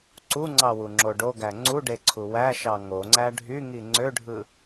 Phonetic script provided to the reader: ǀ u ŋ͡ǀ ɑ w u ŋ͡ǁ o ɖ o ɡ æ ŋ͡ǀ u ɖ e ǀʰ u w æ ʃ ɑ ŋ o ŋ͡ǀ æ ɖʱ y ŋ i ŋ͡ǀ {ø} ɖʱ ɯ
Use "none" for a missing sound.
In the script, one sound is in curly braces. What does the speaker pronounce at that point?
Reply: ø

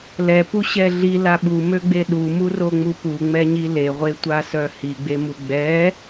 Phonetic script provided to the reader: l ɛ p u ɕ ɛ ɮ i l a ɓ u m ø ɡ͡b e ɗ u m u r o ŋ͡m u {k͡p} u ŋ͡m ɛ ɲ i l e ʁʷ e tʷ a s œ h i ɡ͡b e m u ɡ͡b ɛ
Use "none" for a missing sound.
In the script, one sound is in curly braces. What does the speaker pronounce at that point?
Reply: p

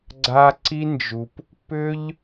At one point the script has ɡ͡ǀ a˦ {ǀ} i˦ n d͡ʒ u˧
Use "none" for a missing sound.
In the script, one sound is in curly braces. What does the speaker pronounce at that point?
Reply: ǀ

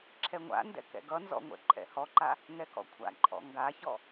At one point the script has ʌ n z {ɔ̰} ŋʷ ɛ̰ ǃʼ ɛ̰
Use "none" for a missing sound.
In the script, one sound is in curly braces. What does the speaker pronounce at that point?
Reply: ɔ̰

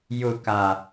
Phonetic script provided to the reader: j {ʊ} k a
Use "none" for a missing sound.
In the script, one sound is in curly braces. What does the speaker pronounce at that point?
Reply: ʊ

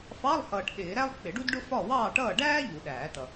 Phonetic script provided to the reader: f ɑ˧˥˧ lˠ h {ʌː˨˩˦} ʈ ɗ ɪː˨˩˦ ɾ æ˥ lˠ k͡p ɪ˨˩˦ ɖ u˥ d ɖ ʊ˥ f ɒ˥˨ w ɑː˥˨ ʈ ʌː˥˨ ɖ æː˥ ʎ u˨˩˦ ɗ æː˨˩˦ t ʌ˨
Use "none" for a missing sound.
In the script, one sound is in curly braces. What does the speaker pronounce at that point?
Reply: ʌː˨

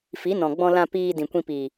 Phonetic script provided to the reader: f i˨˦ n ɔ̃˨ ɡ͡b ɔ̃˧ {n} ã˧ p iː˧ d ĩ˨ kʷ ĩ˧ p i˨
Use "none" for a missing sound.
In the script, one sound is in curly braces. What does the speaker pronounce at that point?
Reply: l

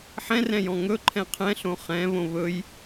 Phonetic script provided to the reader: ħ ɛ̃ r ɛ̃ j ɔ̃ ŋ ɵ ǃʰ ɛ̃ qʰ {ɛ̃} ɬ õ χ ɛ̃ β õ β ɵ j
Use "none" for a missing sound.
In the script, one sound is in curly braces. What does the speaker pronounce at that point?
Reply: ɛ̃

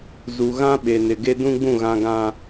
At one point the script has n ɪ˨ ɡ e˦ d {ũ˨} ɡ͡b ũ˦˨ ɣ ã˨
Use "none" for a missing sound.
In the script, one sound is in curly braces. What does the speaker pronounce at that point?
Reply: ũ˦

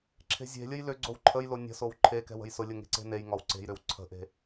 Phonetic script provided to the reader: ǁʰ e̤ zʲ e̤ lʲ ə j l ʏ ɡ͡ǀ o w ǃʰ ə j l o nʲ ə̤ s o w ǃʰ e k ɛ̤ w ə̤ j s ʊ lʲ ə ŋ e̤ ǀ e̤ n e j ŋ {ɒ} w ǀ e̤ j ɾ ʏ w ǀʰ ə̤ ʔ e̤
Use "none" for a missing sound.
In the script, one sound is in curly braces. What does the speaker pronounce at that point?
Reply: ɒ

